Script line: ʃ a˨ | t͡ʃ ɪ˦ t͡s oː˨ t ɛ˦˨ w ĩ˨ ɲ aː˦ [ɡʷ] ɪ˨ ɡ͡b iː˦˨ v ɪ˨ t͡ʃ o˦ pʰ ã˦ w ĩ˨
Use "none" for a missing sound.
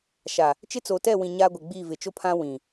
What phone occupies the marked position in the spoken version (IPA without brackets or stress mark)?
ɡʷ